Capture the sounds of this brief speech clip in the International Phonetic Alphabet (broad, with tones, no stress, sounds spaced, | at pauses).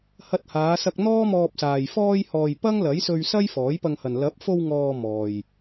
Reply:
h ɐ˧ t̚ h aː˨˧ s ɐ˧ k̚ n̪ ɔː˥ m ɔː˧ p̚ s aː˨ j f ɔː˧ j h ɔː˨ j p ɐ˥ ŋ l ɐ˨˥ j s ɵ˧ ɥ s ɐ˥ j f ɔː˨˥ j p ɐ˧ ŋ h ɐ˨ n l ɐ˨˥ p̚ f o˧ w ŋ ɔː˧ m ɔː˨ j